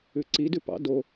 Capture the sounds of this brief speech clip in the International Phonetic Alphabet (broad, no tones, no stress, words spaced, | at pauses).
ʉǀi dʉpɑ̰ do